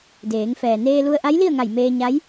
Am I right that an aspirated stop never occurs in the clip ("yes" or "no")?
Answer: yes